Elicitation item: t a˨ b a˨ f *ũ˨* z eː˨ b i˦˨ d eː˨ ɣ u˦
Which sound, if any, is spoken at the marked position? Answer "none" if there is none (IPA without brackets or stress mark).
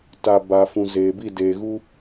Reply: ũ˨